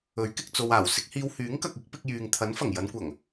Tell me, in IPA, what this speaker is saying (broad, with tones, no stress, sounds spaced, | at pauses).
ɵ˨˥ ɥ k ɪ˨ k̚ t͡s o˨ w aː˨˩ w s ɪ˨˥ k̚ h iː˧ w h yː˨˥ ŋ k ɐ˨ k̚ ɪ˨˥ k̚ p ɪ˧ k̚ j yː˨ ŋ t̪ʰ ɐ˨˥ n f ɐ˨˩ ŋ j ɐ˨˧ n kʷ ɐ˨˩ ŋ